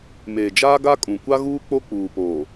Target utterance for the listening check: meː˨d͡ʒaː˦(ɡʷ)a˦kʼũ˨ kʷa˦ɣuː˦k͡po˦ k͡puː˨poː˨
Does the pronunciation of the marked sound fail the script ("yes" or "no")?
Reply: yes